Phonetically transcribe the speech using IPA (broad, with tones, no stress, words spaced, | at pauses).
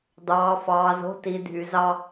d̪ɑː˨fɑː˨zo̤˦ ti˨dʱy˨zɑ˦